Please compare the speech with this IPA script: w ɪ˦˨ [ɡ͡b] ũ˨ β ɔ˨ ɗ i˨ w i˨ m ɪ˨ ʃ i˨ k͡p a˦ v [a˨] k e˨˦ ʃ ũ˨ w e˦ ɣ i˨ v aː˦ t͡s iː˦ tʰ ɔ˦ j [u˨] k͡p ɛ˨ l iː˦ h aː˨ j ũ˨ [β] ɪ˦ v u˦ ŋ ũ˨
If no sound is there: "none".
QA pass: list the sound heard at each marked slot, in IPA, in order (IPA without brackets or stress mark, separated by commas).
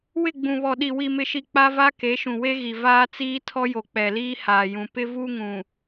ɡ͡b, a˦, o˨, p